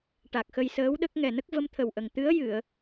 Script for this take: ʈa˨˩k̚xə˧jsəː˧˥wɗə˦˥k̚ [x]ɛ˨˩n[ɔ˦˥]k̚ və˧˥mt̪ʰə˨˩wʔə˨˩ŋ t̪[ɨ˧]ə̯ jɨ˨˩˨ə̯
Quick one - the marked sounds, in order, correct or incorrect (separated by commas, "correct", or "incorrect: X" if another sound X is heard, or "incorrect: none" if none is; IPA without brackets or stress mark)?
incorrect: ŋ, incorrect: ə˦˥, incorrect: ɨ˧˥